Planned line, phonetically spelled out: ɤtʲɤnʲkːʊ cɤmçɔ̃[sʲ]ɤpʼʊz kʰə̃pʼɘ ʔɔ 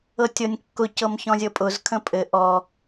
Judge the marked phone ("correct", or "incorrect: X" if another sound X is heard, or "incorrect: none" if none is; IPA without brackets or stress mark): incorrect: zʲ